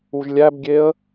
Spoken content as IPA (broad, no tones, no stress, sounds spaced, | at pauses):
u ʒ lʲ æ b ɡʲ e ə̯